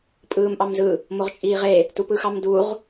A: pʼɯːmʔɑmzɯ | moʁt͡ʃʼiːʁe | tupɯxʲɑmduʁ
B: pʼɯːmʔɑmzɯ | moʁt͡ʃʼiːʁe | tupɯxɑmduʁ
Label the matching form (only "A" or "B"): B